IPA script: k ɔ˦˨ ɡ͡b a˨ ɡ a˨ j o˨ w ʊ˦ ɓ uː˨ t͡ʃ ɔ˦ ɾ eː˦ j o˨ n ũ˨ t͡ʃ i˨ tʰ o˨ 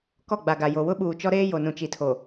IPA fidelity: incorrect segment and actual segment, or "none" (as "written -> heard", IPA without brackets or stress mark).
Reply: none